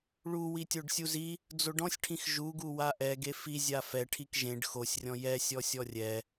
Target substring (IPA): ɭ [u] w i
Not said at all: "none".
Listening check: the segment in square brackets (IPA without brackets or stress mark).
u